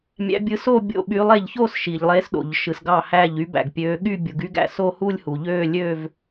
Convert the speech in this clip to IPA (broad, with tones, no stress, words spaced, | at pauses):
mʲæ̰˨˦bʲɯ˨˦ so˥˧bʲo̰˧˩ɓy˨˦lˠ e˧˩ʎçoː˥˧s ʃi˩ʎlˠe˨˦sɗo̰˩ʎ ʃɯ˩sɡɑ˧˩hæː˧˩ʎ y˨˦bæ̰˩ɡpʲøː˨˦ɠy˥˧ bʲu˩ɡy˥˧ɡæ̰˧˩ so˥˧hu˥˧lʲhu˩ ʎøː˥˧ lʲøː˥˧v